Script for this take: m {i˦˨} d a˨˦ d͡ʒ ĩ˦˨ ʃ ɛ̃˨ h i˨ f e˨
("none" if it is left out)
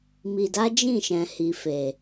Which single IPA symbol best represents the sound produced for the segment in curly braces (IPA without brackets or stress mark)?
i˨